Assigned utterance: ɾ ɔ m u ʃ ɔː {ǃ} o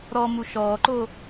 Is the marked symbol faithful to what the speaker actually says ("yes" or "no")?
yes